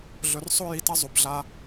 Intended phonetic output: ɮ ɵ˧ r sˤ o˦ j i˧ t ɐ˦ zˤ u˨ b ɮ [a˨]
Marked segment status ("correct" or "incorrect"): incorrect